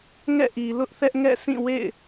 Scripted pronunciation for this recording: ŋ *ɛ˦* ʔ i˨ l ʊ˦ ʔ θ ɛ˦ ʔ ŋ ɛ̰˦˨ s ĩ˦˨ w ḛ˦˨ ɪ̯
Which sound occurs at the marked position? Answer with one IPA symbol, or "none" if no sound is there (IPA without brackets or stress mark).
ɛ̰˦˨